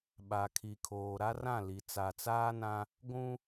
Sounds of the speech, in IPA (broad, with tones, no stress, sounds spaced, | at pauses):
ɓ a˨ kʰ i˨ kʰ oː˨ ɾ a˦ r ã˦˨ l i˨ t͡s a˨ t͡s aː˦ n ã˦ | ɡʷ ũ˦